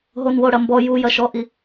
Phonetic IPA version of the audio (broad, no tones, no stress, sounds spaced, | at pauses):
ɦ o n w o ɽ ɐ m b ɔ j u j ɐ ʃ ɔ ʔ i